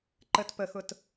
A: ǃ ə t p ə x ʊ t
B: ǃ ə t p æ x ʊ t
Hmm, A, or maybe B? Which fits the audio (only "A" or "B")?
A